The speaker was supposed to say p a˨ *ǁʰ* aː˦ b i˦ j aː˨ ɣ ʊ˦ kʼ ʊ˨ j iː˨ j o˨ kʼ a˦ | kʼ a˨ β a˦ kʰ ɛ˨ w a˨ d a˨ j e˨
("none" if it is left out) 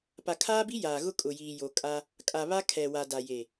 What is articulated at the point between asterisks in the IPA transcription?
kʰ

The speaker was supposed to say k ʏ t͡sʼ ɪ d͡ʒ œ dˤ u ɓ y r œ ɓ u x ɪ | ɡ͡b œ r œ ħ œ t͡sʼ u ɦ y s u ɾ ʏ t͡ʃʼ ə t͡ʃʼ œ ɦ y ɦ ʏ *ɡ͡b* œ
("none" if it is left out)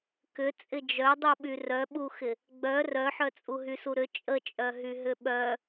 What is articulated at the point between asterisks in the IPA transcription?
ɓ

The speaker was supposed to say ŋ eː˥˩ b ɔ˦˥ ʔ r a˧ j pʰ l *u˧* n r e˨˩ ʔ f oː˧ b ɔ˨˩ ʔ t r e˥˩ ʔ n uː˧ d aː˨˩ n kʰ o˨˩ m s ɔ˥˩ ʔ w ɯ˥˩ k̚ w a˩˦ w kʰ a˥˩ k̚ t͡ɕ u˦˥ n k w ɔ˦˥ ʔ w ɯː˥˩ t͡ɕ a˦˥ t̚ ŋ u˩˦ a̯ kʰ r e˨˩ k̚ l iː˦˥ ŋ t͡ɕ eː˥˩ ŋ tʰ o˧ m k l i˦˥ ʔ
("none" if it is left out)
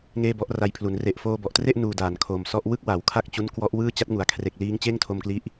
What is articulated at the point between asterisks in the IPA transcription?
u˩˦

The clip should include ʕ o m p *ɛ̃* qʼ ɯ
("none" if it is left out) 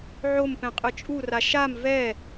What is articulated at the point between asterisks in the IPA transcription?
ɛ̃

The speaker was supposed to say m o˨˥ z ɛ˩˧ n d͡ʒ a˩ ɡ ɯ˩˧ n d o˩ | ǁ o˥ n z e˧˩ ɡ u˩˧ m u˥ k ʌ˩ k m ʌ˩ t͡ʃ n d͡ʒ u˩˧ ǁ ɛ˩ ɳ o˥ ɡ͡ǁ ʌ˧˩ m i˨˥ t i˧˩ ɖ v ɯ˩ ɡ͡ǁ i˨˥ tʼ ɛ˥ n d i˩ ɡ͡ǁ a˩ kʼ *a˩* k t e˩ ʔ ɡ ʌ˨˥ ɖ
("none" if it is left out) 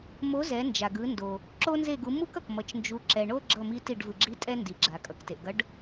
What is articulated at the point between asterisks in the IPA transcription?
ʌ˩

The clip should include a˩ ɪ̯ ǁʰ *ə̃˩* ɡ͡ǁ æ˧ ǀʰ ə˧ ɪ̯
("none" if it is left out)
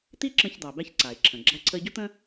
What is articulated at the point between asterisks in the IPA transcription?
ə̃˩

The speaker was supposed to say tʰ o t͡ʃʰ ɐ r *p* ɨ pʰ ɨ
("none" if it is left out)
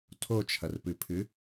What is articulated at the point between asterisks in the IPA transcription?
p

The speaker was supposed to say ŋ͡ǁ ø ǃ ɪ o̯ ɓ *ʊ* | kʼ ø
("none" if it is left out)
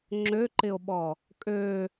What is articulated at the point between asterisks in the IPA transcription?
ɔ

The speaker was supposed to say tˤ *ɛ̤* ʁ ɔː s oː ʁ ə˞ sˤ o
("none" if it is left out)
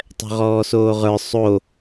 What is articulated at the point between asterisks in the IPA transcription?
ɛ̤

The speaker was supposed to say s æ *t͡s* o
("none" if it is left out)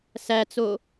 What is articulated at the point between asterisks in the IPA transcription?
t͡s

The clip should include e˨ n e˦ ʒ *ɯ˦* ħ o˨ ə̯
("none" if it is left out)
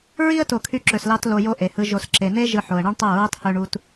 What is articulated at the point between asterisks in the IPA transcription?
ɯ˧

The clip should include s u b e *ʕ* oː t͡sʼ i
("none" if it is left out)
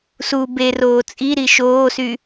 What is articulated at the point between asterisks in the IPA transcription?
r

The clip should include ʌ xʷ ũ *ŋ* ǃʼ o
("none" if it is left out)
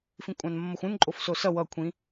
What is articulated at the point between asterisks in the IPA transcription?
n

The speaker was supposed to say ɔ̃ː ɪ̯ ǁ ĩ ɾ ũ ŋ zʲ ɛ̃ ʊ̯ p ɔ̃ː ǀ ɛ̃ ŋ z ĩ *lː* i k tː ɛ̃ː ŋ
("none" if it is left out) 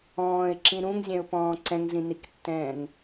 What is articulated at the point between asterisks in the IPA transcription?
n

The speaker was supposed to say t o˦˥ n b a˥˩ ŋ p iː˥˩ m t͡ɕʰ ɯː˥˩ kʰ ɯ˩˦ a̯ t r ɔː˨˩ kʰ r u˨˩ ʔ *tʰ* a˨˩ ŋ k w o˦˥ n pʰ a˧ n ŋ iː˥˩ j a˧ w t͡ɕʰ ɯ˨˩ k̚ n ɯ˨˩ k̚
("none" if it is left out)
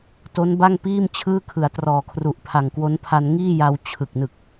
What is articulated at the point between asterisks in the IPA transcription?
pʰ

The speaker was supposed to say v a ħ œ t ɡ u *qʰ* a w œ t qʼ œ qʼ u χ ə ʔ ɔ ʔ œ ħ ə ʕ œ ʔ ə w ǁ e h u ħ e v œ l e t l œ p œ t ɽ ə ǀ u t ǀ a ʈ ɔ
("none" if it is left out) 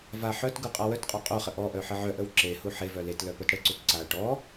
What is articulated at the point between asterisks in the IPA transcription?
qʼ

